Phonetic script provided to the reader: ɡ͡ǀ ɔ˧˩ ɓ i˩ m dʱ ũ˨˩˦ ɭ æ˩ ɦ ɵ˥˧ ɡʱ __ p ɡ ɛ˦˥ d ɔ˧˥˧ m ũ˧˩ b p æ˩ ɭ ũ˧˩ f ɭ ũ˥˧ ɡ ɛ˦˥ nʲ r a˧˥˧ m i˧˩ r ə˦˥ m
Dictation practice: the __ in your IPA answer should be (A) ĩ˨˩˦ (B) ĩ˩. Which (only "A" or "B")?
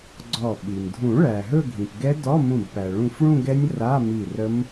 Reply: B